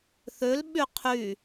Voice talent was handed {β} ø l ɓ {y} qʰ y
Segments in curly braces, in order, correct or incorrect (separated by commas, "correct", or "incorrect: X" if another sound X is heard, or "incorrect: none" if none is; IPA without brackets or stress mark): incorrect: θ, correct